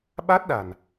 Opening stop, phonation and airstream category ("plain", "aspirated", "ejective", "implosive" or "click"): implosive